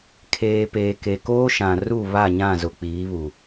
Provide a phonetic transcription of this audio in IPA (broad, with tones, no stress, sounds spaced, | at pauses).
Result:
kʰ eː˨ p eː˨ k e˨ k oː˦ ʃ ã˨ r u˦˨ β a˦˨ ɲ ã˦˨ z ʊ˨ k͡p iː˨˦ β u˨